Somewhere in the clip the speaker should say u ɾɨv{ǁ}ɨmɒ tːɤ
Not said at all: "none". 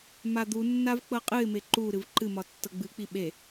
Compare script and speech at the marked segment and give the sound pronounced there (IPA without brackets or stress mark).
ǃ